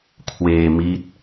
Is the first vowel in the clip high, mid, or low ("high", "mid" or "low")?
mid